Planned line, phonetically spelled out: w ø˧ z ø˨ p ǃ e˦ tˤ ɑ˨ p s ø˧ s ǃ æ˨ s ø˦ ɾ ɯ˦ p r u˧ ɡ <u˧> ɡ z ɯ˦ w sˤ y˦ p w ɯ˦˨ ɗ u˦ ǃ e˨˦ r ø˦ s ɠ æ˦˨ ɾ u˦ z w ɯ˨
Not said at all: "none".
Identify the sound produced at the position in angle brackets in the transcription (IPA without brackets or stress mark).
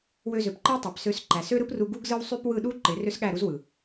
u˦